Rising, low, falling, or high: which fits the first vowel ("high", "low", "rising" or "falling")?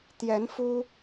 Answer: rising